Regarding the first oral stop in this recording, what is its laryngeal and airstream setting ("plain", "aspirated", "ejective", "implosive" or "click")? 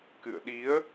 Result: plain